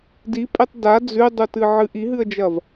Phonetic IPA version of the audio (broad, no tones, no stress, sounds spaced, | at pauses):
d i pʼ e tˤ d a d͡z ʉ dˤ u t ɨ ʕ ɨ ʔ i ɦ ɨ ə̯ d͡ʒ ɐ v